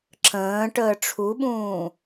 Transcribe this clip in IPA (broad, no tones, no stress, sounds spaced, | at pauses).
ǁ ə̃ː ʈ əː ʈ͡ʂʰ u ɓ ũː